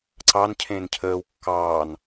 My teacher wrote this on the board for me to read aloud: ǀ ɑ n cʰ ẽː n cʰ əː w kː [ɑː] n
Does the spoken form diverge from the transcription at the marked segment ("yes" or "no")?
no